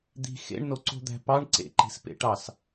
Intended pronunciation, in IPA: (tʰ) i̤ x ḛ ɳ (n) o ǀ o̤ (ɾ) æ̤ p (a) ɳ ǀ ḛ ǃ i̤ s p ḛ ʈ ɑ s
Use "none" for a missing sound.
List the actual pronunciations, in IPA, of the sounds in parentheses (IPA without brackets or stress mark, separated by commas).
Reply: d̪, n, d̪, ɑ